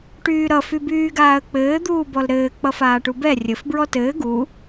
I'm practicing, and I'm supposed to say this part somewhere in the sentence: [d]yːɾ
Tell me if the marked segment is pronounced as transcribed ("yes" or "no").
no